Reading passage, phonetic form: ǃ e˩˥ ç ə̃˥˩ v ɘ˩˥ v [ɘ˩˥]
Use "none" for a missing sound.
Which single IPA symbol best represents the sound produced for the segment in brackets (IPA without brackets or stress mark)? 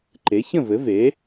e˩˥